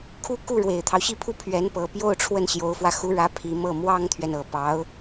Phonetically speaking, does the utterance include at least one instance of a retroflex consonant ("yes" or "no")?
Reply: yes